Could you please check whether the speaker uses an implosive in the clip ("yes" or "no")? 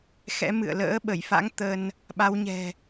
yes